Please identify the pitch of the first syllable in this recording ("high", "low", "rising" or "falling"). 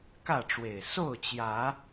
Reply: falling